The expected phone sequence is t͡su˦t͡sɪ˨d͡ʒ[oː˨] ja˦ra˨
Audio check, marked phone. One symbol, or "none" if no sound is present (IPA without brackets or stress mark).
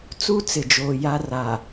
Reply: oː˨